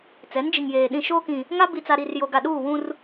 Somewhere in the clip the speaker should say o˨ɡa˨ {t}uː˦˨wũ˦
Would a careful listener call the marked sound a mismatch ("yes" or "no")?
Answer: yes